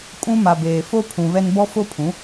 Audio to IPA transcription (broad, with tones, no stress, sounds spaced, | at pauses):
kʼ ũ˦ m a˨ b eː˨ f o˦ pʰ ũ˨ β ɛ˦ n b ɔ˦ f o˦ pʰ ũ˨˦